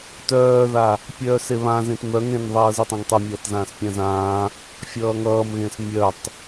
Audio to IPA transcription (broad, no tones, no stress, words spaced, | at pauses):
tœːða | pʲœːseβãzẽt mœŋ ẽn ðˤʌːzitˤãŋtˤʌ mʲʌːtzãːspʲãzãː | fʲʌːŋʌːmɣẽs mʲœtˤ